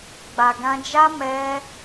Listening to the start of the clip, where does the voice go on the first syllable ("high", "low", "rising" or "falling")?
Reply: low